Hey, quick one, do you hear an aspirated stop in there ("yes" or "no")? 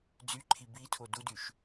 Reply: yes